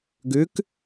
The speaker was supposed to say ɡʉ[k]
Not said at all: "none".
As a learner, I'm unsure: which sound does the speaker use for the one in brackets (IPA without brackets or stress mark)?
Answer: k